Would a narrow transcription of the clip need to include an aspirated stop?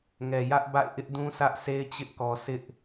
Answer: no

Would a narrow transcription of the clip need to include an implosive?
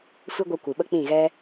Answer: yes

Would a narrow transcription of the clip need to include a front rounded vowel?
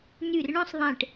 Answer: yes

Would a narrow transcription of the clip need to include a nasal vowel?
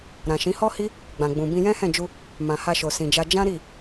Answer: yes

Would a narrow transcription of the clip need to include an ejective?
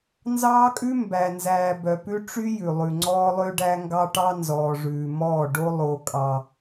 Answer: yes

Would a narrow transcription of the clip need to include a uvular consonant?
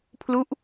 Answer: no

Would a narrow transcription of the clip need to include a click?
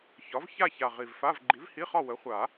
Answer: yes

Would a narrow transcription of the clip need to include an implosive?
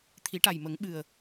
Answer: yes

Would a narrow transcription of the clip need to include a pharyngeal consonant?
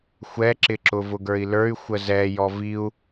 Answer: no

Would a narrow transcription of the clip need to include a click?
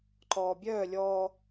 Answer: yes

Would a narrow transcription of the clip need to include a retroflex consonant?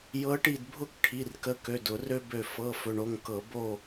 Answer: yes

